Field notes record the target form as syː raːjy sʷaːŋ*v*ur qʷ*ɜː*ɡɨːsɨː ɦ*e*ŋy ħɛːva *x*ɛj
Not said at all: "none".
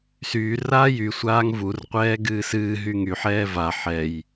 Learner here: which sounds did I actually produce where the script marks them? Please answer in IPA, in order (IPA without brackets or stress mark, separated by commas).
v, ɛː, y, ħ